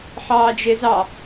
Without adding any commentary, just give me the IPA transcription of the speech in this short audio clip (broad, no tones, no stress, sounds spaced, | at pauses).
ħ ɑː d͡ʒ e z ɑ